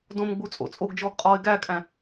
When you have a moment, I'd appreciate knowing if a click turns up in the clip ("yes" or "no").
no